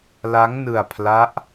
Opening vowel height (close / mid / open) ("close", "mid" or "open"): open